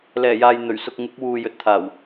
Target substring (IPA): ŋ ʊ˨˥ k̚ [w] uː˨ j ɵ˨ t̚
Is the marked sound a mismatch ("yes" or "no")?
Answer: no